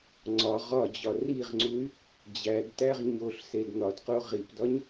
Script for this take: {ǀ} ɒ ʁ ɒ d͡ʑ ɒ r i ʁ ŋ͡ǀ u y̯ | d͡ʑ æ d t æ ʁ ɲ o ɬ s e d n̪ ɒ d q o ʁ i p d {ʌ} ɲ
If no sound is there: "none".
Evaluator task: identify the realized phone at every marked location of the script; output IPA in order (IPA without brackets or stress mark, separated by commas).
ŋ͡ǀ, ɒ